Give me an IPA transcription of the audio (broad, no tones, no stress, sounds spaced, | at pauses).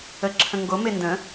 ə ǁʰ ə̃ ŋ ɡ o m e n d ə̃